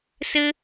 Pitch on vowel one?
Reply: high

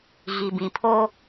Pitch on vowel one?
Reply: low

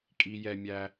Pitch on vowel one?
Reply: high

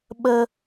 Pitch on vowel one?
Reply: high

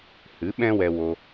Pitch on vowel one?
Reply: rising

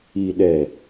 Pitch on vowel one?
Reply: low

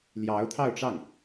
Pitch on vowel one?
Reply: rising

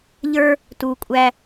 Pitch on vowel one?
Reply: high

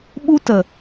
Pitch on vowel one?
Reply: high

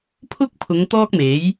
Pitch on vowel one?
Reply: high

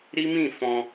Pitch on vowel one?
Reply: high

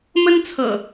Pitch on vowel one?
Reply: high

